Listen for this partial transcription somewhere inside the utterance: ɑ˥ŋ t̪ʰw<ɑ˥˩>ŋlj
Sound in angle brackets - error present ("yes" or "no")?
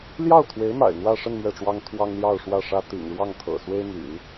yes